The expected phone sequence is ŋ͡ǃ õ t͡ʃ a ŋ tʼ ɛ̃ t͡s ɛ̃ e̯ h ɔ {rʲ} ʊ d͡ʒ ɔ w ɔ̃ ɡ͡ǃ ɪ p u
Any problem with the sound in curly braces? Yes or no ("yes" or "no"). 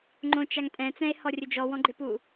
no